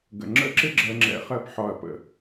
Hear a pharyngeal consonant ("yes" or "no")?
yes